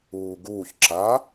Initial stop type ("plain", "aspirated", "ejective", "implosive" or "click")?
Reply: plain